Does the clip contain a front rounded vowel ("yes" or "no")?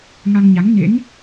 no